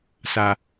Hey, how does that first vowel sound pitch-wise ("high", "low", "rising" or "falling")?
low